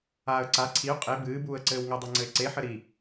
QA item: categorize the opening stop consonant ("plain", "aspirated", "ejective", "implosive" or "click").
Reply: click